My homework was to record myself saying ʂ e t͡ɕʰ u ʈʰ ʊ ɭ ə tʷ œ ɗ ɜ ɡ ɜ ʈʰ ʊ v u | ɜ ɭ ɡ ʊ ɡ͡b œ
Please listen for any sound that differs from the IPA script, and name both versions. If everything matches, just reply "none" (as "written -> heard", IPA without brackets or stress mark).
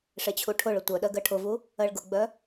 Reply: none